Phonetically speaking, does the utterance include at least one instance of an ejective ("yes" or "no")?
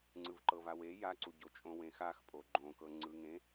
yes